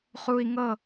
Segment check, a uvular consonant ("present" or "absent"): present